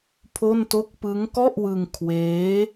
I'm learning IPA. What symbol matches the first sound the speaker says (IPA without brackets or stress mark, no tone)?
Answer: pʰ